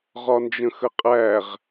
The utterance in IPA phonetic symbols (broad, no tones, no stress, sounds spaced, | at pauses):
ʁ ɒ n d͡ʒ ə̃ x ə qʼ æ ʁ